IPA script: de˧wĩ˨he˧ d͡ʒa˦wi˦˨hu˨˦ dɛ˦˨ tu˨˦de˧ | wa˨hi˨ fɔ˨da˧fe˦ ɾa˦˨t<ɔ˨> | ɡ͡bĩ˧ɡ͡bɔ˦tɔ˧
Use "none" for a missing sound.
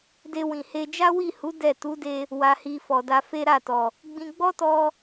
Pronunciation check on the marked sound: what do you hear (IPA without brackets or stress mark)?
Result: ɔ˨